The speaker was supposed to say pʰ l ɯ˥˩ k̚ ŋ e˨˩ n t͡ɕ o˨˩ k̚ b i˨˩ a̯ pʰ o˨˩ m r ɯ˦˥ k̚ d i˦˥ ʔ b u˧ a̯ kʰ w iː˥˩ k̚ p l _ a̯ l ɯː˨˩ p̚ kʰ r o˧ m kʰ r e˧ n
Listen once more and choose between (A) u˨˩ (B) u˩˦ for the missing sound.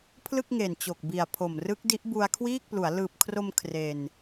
B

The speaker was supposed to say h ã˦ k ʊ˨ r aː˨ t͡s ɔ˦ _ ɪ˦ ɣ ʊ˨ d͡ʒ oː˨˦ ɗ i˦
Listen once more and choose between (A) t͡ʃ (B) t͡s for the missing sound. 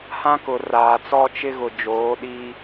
A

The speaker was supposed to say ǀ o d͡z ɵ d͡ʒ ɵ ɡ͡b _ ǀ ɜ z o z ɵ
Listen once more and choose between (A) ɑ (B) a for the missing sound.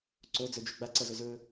B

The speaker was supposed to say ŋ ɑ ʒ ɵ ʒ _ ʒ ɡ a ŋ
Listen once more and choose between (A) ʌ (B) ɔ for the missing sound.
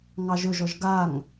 B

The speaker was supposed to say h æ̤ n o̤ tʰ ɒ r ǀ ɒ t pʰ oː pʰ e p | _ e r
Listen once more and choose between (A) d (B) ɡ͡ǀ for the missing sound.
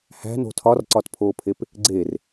B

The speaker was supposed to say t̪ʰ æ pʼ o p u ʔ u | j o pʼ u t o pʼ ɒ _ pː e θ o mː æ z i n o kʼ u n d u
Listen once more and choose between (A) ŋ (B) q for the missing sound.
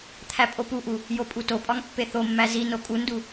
A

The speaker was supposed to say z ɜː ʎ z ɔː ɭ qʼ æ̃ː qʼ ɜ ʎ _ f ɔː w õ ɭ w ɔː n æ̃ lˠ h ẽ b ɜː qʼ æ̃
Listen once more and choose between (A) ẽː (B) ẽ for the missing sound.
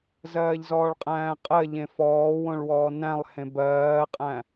B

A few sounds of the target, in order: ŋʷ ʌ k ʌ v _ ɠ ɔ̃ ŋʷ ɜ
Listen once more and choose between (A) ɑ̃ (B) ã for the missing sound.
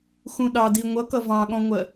A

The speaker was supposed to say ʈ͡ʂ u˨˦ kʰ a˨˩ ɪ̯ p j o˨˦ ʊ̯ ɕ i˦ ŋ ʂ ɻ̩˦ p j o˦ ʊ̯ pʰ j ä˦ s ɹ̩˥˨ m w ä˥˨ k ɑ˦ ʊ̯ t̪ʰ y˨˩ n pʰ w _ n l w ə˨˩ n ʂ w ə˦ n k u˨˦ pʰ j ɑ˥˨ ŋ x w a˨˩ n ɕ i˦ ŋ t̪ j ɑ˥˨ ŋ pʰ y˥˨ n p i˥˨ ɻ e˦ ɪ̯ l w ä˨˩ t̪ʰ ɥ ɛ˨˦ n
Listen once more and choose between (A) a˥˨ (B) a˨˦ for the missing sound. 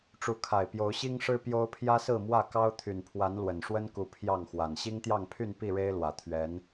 B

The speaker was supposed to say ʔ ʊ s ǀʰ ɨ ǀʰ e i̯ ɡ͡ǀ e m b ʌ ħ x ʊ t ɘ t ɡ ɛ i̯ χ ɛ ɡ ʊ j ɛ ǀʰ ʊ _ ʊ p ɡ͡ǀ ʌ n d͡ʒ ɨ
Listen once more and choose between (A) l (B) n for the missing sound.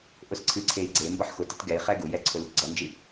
A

